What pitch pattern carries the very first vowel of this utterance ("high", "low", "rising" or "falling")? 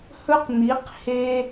high